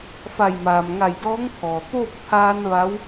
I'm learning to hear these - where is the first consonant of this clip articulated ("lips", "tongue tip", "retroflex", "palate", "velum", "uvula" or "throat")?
lips